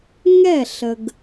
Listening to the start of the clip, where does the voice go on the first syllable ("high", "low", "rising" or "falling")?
falling